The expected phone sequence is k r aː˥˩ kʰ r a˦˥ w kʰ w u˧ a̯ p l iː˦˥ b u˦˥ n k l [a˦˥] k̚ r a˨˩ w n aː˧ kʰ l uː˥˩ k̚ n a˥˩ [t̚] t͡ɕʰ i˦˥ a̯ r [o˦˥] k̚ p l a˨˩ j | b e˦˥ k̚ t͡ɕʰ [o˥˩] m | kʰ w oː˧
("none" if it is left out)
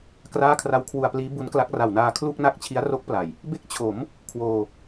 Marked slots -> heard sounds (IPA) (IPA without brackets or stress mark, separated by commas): a˦˥, k̚, o˦˥, o˩˦